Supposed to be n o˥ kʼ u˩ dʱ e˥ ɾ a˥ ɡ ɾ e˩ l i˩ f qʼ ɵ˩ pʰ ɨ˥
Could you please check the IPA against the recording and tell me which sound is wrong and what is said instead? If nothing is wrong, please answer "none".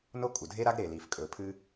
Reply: qʼ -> kʼ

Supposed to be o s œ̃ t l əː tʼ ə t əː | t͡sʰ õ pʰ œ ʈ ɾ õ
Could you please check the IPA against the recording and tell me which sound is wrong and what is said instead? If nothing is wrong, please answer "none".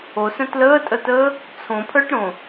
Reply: none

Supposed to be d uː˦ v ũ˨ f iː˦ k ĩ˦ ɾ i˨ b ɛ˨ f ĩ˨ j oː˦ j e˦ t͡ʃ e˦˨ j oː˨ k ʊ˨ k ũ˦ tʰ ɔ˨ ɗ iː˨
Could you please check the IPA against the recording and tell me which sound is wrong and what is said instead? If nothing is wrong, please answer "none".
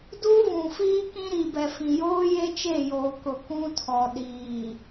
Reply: none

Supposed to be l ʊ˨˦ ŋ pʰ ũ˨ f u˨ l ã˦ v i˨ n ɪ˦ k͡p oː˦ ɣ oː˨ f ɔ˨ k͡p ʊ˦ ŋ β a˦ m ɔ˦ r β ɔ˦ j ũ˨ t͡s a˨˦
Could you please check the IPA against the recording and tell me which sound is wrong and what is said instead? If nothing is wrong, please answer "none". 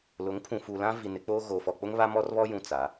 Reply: none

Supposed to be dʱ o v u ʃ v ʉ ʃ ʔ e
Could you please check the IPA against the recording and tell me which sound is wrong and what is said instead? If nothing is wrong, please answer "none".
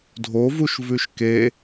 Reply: ʔ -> k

